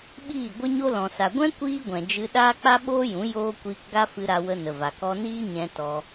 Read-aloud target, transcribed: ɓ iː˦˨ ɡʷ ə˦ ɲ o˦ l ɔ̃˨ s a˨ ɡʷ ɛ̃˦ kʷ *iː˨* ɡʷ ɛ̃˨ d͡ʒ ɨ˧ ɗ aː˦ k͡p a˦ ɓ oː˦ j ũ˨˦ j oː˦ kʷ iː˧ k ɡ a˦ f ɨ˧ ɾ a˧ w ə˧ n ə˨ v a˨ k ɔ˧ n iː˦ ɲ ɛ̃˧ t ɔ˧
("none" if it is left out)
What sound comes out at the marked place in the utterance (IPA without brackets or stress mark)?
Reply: iː˦